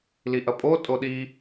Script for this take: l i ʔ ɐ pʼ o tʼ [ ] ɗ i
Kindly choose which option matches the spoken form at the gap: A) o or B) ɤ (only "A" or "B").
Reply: A